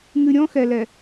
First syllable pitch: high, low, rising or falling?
low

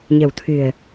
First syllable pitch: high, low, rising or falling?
low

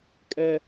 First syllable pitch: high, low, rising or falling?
high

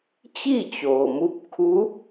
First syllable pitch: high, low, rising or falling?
falling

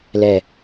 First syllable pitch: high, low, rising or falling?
low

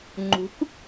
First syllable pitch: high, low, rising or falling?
rising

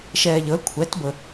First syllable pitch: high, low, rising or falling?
low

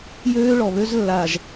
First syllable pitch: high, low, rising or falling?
high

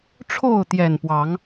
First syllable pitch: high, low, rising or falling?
falling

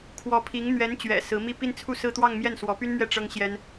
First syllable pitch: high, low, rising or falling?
rising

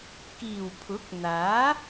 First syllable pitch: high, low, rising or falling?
low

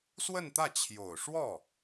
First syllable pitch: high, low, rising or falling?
falling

